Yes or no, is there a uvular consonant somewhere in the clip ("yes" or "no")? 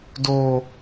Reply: no